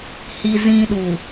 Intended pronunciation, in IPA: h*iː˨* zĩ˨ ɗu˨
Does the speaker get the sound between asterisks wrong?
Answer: yes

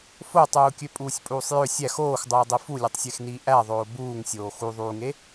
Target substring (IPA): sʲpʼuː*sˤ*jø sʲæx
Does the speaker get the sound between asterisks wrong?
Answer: no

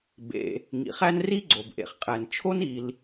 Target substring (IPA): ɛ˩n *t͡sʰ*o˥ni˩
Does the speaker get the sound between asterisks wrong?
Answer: yes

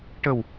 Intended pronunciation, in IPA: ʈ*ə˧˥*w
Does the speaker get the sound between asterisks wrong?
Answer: yes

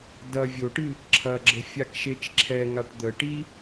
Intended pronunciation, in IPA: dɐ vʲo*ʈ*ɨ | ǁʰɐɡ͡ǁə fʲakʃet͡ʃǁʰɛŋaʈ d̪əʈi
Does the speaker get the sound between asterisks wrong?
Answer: no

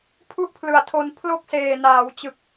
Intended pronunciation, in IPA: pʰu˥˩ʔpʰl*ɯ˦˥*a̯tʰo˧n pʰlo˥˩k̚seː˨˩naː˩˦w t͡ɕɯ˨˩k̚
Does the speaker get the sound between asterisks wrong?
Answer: yes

